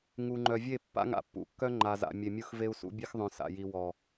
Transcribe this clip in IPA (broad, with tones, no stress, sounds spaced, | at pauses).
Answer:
ŋ u˨ ŋ͡ǃ œ˨ vʲ e˦˨ pː a̰˦ ŋ a̰˨ pː ṵ˨ kː œ˦ ŋ͡ǃ a˨ z a̰˨ mʲ e˨ mʲ u˦ x v e˦ u̯ s ṵ˦ bʲ e˦ x ðˤ œ̃˨ s a̰˨ j i˨ w ɔ˨